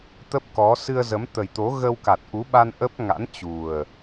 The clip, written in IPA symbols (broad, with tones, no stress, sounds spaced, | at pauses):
t̪ ə˦˥ p̚ k ɔ˨˦ s ɨ˧ ə̯ z ə˨˦ m t̪ ə˨˩ j t̪ o˨˦ ɣ ə˧ w k a˨˩ t̚ ʔ u˨˦ ɓ a˧ n ʔ ə˦˥ p̚ ŋ a̰˧˥ n t͡ɕ u˨˩ ə̯